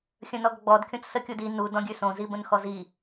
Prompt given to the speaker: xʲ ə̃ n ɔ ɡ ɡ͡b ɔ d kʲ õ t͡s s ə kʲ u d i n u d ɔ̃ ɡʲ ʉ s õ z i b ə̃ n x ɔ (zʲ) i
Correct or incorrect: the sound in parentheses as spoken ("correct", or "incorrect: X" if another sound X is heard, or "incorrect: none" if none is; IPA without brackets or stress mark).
incorrect: z